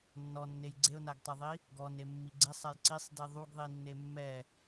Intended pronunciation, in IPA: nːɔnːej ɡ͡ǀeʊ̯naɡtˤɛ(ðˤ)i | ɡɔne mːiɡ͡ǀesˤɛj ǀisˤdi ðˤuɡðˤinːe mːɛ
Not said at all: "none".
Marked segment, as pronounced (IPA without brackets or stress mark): ðˤ